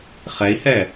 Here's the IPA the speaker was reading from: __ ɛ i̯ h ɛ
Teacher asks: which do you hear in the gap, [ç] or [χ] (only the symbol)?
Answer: χ